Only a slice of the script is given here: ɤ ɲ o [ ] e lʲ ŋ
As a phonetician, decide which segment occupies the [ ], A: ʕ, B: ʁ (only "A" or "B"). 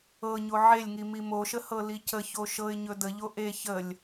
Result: A